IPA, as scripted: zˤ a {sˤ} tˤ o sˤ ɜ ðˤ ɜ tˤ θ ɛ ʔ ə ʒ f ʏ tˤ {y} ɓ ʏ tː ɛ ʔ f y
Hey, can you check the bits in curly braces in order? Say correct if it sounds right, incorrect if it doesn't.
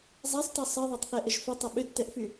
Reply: correct, incorrect

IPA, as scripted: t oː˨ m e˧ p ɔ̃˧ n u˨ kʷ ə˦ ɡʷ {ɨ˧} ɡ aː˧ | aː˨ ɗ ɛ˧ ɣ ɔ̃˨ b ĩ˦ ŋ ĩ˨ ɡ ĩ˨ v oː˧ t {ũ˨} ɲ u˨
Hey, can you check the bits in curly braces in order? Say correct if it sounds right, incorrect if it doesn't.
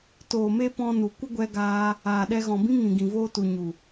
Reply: incorrect, incorrect

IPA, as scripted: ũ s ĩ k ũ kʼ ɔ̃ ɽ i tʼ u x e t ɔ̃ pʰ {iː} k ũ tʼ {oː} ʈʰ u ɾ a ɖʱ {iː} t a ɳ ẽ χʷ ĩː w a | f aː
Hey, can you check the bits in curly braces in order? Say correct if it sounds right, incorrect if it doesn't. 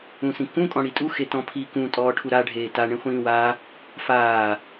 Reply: correct, incorrect, incorrect

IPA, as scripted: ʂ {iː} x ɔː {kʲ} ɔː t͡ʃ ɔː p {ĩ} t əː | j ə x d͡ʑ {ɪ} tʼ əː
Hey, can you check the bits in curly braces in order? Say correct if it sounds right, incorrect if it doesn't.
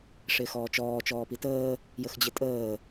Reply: incorrect, incorrect, incorrect, correct

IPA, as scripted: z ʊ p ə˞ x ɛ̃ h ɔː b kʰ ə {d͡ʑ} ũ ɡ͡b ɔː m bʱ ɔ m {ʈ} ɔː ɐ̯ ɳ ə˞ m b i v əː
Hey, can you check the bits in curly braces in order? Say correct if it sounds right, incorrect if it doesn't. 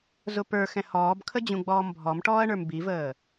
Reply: correct, correct

